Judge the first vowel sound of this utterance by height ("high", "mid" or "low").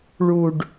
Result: high